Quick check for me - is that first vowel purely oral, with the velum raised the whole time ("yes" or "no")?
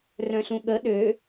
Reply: no